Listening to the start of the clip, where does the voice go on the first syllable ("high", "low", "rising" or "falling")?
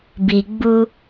low